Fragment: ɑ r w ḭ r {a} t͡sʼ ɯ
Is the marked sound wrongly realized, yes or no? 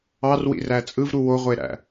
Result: yes